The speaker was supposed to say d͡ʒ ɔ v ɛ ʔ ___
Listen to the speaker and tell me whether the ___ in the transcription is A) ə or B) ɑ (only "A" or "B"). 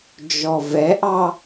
B